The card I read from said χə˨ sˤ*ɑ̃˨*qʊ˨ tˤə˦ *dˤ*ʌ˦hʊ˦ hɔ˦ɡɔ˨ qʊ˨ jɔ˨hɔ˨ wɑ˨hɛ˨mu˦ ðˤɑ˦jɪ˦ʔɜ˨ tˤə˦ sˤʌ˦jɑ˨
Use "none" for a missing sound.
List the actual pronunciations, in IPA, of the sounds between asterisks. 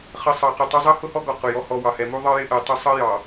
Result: ɑ˨, zˤ

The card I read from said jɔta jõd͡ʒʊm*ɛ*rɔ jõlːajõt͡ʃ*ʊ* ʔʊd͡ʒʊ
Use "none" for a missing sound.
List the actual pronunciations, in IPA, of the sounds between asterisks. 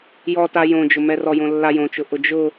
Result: ɛ, ʊ

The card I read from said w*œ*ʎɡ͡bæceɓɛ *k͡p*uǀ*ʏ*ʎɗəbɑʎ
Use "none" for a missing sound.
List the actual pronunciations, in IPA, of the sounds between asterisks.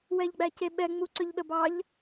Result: ɛ, ŋ͡m, ʏ

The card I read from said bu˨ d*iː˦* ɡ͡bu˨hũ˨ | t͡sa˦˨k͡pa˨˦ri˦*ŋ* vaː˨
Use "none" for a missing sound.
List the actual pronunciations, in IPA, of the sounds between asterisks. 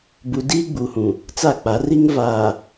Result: iː˦, ŋ

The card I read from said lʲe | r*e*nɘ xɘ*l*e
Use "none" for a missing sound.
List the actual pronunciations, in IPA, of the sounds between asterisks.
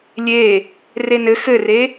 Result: e, r

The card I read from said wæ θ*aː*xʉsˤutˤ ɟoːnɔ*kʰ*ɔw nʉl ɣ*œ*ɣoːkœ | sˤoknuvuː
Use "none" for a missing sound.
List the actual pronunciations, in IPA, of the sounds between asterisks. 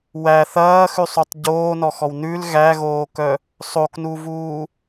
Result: ɐː, x, æ

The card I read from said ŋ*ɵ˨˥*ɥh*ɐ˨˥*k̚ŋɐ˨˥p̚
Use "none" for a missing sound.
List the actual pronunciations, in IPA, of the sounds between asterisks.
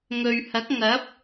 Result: ɵ˨, ɐ˨˥

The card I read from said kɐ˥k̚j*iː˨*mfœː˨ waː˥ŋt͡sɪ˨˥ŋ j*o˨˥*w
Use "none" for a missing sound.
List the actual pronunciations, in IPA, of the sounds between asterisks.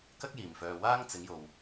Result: iː˨˩, o˨

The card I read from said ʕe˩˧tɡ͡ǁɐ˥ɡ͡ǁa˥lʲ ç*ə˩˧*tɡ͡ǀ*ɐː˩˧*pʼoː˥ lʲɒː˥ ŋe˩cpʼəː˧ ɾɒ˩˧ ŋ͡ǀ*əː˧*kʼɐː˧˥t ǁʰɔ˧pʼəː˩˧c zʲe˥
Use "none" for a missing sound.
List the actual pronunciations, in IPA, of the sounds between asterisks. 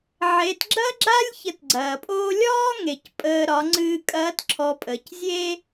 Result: ə˧, ɐː˩, ɨː˧

